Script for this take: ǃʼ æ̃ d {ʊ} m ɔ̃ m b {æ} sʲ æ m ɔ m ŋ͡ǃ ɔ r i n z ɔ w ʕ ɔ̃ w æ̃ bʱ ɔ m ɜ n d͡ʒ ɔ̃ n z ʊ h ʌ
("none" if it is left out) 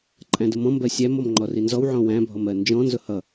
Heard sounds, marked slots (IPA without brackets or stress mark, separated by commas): ʊ, ɜ